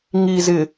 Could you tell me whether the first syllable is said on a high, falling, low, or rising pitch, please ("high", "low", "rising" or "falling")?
low